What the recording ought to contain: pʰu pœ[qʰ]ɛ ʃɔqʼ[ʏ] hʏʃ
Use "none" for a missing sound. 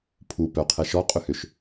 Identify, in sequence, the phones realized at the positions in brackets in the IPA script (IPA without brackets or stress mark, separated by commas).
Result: qʰ, ʏ